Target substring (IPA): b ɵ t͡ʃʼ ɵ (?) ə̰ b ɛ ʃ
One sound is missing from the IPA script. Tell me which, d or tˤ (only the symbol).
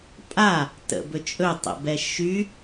tˤ